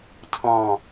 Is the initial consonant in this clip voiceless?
yes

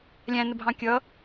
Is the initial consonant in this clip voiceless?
no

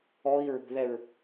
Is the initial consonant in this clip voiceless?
no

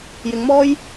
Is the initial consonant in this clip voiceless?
no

